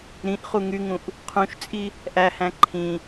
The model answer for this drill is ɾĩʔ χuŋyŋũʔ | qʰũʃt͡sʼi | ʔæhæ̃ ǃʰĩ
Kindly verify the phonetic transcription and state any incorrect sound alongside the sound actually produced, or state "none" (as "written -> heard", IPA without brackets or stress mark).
none